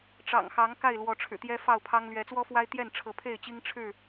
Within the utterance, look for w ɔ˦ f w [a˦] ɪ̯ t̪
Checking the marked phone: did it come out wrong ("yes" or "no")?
no